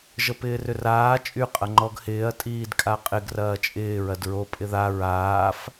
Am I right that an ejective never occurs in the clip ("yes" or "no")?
no